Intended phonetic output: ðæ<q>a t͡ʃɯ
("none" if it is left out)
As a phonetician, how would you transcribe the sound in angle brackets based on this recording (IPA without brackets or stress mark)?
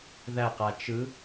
q